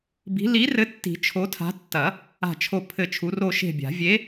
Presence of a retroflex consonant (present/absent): absent